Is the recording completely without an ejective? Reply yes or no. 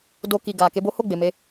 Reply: yes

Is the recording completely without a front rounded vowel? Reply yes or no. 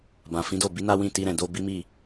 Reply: yes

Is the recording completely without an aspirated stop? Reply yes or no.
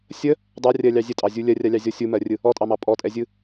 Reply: yes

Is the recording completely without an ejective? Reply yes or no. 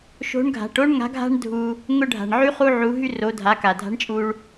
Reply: no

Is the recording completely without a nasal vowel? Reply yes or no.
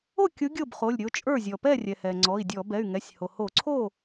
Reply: yes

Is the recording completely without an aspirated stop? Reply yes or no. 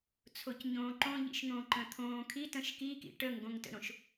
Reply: no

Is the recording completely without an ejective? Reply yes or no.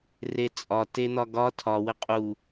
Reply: no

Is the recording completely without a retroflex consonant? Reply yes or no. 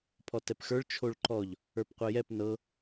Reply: no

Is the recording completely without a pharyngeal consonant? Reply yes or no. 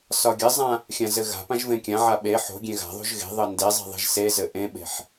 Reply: no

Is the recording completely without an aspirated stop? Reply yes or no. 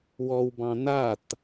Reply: yes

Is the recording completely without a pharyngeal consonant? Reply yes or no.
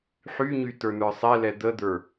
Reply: no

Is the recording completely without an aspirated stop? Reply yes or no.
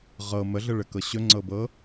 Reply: yes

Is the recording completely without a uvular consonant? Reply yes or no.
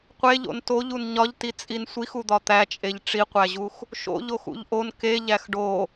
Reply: no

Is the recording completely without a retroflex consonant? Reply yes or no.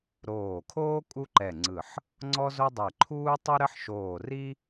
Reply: yes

